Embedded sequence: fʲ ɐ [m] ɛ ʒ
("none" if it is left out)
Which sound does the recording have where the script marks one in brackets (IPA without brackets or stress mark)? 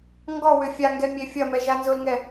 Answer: m